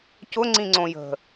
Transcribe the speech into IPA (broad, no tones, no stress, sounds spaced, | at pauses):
c ʊ ŋ͡ǀ ĩ ŋ͡ǀ õ j ə̤